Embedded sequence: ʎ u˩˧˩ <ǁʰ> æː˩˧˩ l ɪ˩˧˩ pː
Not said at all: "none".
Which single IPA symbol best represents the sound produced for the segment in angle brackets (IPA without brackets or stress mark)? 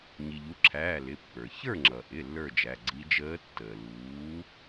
ǁʰ